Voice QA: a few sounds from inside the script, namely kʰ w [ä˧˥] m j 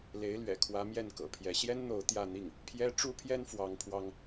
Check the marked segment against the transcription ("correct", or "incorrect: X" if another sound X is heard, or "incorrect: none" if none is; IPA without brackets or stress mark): correct